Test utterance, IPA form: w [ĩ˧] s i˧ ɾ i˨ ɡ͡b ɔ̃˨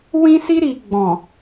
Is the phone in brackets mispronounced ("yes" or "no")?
no